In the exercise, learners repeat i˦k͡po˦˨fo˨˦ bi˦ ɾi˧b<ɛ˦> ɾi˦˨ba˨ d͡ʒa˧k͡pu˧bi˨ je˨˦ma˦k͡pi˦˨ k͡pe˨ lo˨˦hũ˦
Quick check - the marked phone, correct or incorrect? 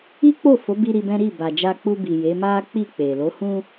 incorrect